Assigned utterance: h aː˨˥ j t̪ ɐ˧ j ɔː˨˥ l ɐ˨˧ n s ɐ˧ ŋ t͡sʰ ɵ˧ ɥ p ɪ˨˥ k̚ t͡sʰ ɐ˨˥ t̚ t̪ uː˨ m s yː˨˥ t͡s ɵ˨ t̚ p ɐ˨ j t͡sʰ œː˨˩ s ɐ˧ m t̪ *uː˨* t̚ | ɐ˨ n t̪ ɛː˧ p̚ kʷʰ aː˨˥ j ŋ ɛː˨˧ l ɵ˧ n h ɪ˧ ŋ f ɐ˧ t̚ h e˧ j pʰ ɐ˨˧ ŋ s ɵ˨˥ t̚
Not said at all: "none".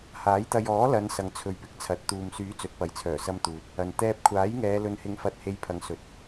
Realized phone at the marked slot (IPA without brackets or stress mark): uː˨